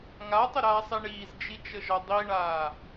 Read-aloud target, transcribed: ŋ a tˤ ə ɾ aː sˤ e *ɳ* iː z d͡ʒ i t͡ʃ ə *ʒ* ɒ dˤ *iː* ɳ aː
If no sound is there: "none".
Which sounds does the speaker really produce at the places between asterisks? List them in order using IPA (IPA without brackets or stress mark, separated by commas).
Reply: ɳ, ʒ, i